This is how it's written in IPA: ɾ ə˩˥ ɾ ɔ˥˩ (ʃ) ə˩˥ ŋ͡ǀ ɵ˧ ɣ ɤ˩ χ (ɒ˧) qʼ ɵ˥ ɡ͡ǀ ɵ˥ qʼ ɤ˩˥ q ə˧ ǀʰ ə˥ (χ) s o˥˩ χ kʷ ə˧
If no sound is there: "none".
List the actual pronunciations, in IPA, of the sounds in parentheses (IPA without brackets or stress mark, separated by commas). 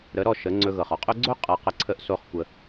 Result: ʃ, ɒ˧, ʔ